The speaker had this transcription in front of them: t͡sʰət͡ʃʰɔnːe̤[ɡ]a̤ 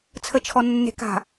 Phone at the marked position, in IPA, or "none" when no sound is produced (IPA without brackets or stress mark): k